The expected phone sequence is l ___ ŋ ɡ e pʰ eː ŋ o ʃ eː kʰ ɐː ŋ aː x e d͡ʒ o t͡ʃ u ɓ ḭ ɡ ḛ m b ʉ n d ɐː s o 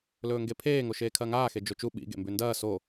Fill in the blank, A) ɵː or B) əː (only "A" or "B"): A